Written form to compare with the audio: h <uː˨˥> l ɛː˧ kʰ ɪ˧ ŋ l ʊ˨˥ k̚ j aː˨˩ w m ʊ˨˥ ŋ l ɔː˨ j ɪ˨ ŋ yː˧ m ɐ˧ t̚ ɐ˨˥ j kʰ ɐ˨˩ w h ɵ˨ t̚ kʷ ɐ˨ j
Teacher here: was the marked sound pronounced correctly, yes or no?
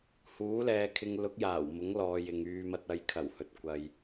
yes